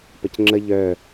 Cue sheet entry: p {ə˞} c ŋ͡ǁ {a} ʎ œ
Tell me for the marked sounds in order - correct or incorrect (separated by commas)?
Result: incorrect, incorrect